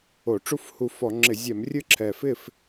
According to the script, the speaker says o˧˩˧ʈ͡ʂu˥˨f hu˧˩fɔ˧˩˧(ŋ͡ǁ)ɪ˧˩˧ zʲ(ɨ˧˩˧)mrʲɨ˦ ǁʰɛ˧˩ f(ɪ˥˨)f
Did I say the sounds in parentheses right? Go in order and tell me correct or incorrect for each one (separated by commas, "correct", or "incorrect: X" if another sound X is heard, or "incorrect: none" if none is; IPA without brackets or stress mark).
correct, incorrect: ɛ˧˩˧, correct